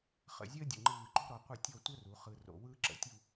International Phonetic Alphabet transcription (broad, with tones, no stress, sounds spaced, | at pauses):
χ ə̰˧˩ zʲ əː˥ dʲ ə̰˧˩ ŋ͡ǃ ɯː˧˩ ǃ o̤˥ ɾ ɔ˩˧ qʷ ə˥˧ tʲ ɔ˥˧ tʷ ə˥ r u˩˧ χ ɯ˧ r o̰˧˩ w ɯː˥ ǁ ə̰˩˧ tʲ u˥˧